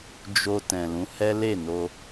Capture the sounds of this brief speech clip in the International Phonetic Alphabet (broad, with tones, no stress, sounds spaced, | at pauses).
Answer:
d͡ʒ o˧ t ɛ̃˨ l ũ˨˦ h ɛ˦ l e˦˨ n o˧